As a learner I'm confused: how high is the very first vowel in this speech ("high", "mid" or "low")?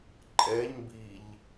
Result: mid